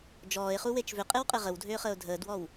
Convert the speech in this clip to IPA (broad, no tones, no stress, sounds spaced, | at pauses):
d͡ʒ ɔː ɪ̯ χ u w e t͡ʃ v ʏ qʼ e w qʼ e ʁ ə w dʱ ʏː χ əː ʊ̯ dʱ əː d w ɔ w